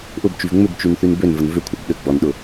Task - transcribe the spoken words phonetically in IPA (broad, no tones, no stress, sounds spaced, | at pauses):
ʔ ʊ b t͡ʃ y v ŋ͡m ʏ b t͡ʃ y n θ y n b ø n v ə n v ʏ kʷʰ ɐ b ɗ ʏ ɡ͡b ɔ n ɗ ʊ